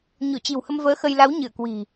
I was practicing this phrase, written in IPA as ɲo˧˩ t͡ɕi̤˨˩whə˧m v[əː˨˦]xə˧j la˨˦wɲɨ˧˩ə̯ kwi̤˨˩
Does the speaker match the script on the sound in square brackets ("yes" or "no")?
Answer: yes